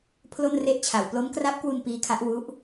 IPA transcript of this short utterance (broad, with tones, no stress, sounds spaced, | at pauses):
pʰ l o˥˩ n r e˥˩ ʔ t͡ɕʰ a˨˩ w p l o˦˥ m k r a˦˥ p̚ k w u˧ n p iː˦˥ kʰ a˦˥ ʔ w u˦˥ ʔ